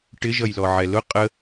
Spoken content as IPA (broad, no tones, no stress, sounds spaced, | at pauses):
ʈ ɪ ʒ ʌ j l ɔ ʕ ɛ l ʊ qʼ ə